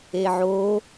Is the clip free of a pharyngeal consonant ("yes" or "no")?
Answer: no